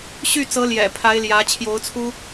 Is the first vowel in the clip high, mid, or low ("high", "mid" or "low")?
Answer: high